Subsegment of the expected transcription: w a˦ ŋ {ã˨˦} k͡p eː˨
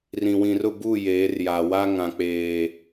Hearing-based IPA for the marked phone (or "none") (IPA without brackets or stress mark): ã˨